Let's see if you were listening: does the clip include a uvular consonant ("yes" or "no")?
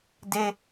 no